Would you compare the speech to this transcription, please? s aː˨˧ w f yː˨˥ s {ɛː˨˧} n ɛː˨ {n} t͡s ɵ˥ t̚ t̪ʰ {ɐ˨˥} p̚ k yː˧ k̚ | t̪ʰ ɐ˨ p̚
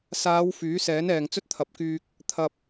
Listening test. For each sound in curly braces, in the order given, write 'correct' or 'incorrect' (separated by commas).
incorrect, incorrect, correct